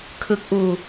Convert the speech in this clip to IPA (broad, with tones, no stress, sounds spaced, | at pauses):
kʰ ɯ˦˥ k̚ ʔ uː˧